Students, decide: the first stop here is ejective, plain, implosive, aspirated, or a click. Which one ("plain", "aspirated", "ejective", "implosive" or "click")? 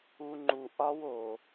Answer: click